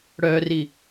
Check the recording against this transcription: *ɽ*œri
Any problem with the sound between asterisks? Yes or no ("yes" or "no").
no